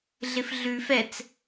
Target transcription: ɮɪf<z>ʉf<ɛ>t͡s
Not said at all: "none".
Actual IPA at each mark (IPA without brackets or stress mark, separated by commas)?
ɮ, ɛ